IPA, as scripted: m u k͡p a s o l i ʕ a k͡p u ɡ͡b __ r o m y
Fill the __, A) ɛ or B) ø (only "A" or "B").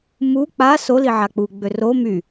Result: B